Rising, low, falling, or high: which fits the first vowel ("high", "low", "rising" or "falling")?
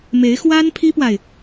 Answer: rising